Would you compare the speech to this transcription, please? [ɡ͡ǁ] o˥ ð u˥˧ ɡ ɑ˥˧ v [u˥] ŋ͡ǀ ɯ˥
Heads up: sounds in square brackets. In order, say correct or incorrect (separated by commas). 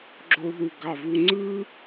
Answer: correct, correct